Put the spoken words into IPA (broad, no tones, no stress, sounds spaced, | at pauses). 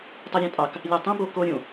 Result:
tˤ e ɾʲ ɑ̃ tʼ ɑ k | lʲ æ tˤ ẽ b o k o ɾʲ ũ